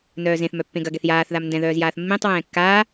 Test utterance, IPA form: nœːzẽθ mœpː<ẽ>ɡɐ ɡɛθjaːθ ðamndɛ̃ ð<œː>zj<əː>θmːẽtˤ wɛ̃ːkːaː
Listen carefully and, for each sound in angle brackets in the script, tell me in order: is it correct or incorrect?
correct, correct, incorrect

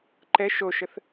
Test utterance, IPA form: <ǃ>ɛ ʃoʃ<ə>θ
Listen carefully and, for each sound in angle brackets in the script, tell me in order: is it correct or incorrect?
correct, correct

